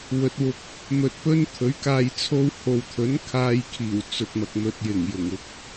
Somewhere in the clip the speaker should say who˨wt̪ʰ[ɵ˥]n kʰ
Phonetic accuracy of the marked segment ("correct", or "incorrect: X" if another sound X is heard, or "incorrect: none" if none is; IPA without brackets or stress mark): incorrect: ɵ˨˥